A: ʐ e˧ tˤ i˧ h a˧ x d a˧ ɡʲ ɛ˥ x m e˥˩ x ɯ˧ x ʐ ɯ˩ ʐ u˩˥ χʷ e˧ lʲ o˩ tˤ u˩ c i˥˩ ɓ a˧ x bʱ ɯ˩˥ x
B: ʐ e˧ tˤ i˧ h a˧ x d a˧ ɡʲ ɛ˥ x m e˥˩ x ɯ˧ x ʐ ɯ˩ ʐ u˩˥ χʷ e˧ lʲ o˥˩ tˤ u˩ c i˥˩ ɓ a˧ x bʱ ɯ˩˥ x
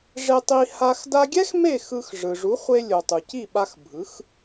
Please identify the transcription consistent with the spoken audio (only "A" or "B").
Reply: A